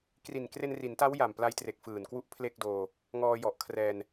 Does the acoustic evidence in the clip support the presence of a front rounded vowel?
no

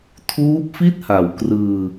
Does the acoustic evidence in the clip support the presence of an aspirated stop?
yes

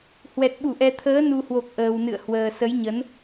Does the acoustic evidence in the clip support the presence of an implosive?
yes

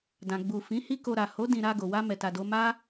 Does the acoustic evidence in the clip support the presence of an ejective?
no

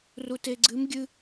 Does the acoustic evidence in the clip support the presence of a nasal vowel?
no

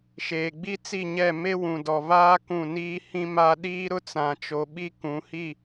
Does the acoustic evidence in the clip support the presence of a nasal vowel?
yes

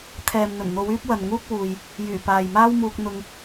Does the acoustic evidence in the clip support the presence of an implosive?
no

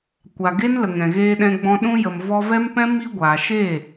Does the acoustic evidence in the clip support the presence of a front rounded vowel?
no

